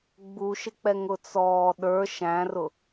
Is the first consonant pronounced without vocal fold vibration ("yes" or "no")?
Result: no